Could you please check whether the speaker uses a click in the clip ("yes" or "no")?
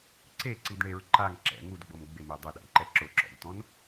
yes